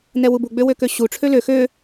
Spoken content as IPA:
n ɛ w u b u ɡ͡b ø w ø k ø ɕ u ʈ͡ʂʰ ø l ø x ø

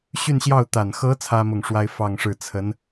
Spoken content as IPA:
ɕ y˥˧ n ɕ j ɑ˥˩ ʊ̯ t̪ a˨˩ n x ɤ˧˥ t͡sʰ ä˥ m ʊ˥˩ ŋ ʂ w a˥ ɪ̯ f ɑ˥˧ ŋ ʂ ɻ̩˥˩ t͡sʰ ə˧˥ n

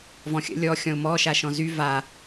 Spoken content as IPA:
v ɔ̃ xʲ ə̰ lʲ ɔ xʲ ɔ̃ ʊ̯ m ɔ ʃ a ʃ ɔ̃ z y v a

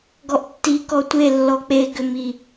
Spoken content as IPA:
ɡ ɔ ʔ tː i k ɔ tʷ e lː ɔ k͡p e ɡ ʏ m i

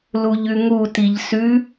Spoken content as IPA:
l u ʎ ʉ ŋ u t i ʎ s ʉ

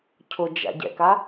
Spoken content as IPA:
cʰ ʊ d͡ʒ a̰ ɟ ɛ̰ k a

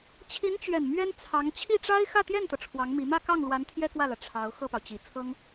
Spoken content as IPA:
t͡ɕʰ i˧˥ n t͡ɕ ɥ ɛ˨˩ n m ɥ ɛ˥ n t͡sʰ ɑ˧˥ ŋ t͡ɕʰ i˥˩ ʈ͡ʂ a˥ ɪ̯ x ä˥˧ t̪ j ɛ˥˩ n t̪ ɤ˩ ʈ͡ʂʰ w ɑ˧˥ ŋ m i˧˥ m ä˥˧ k ɑ˥˩ ŋ l w a˧˥ n t̪ʰ j ɛ˥ k w ä˥˩ l ä˩ ʈ͡ʂʰ ɑ˧˥ ʊ̯ x ɤ˥˩ p ɑ˩ ʊ̯ t͡ɕ i˨˩ t͡sʰ ɤ˥ ŋ

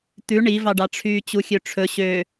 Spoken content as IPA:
t̪ ʉ ɳ i v ɑ ɖ ɑ ʈ͡ʂʰ yː t͡ɕ u xʲ ø ʈ͡ʂʰ ɵ ɕ ø

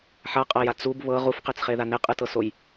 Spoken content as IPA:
ħ a qʼ a j a t͡s u b β ɤ ʁ u f q e t͡s χ e ð a n e qʼ ɯ t ɤ s o j

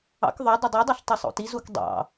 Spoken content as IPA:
ɑ̰ k ðˤ œ dˤ ɵ dˤ y dˤ o ɬ tˤ i sˤ o̰ t i z u k dˤ ɑ̰

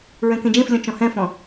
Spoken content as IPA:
ɹ ɛ̃ k ẽ d͡ʒ ẽ f lʲ ɔ̃ t͡ʃ ɔ̃ h ɛ̃ f ɔ̃

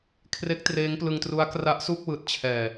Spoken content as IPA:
kʰ r e˦˥ k̚ t r eː˦˥ ŋ p l ɯ˧ ŋ t r u˦˥ a̯ k r a˦˥ ʔ s u˥˩ k̚ w ɯː˨˩ t̚ t͡ɕʰ ɛː˨˩

